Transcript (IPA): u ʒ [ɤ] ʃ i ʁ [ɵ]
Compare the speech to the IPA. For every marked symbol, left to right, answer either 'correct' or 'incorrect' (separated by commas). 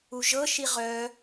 correct, incorrect